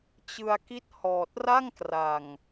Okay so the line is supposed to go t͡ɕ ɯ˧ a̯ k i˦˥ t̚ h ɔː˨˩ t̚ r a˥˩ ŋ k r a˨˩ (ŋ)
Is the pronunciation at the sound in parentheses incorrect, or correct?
correct